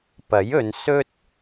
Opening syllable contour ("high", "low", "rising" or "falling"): rising